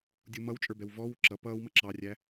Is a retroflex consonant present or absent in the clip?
absent